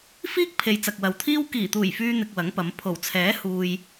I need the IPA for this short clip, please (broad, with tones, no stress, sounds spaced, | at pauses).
f iː˥ k̚ pʰ e˨ j t͡s ɐ˨ k̚ w ɐ˨ w t̪ʰ iː˥ w k iː˨˩ t̪ uː˨˩ j f yː˥ n̪ ɪ˧ k̚ w ɐ˨˥ ŋ p ɐ˨˧ m pʰ o˨˩ w t͡sʰ ɛː˨˥ h uː˨ j